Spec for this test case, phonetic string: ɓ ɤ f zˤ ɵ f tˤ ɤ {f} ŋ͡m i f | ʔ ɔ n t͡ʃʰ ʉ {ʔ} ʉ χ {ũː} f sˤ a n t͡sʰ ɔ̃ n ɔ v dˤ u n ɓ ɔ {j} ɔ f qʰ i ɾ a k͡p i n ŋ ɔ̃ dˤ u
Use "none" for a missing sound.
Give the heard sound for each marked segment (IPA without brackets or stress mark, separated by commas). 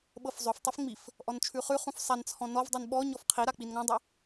f, χ, ũ, ɲ